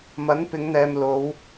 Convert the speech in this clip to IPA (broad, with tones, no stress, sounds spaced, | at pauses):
m ɐ˨˥ n p ɪ˨˧ ŋ n̪ ɛː˨ m l o˨˧ w